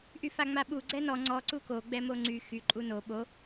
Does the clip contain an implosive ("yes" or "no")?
yes